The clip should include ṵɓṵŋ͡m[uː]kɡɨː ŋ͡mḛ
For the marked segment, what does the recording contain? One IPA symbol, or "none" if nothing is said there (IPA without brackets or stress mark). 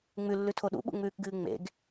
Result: ʉː